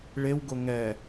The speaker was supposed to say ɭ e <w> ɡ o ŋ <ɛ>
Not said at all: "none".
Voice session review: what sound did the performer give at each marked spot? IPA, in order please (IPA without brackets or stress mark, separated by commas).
w, ɛ